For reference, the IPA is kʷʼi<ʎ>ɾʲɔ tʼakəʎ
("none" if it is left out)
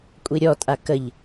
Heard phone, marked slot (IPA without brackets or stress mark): none